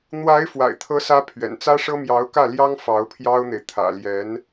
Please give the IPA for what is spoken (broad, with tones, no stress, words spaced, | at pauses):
n̪wa˧˥ɪ̯ fwa̰˨˩ɪ̯t̪ʰɤ˧˥sä˧˥ pʰɥɛ̰˨˩nt͡sä˥ʂɤ˥ mjɑ˧˥ʊ̯kä˥˩ljɑ˥ŋ fɑ˧˥ʊ̯pʰjɑ˥ʊ̯n̪e˨ɪ̯ t̪ʰä̰˨˩ljɛ˧˥n